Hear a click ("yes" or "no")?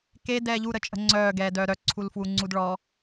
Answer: yes